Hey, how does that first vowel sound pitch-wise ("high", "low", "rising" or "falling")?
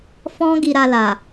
high